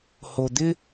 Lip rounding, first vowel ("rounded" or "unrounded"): rounded